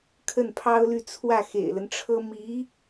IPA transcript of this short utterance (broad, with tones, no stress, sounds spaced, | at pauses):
kʰ ə˥˩ n pʰ ɑ˥ ʊ̯ l y˥˧ t͡sʰ w ä˥˩ x ḛ˨˩ ɪ̯ l ə˦ n ʈ͡ʂʰ ɤ˥ m i˧˥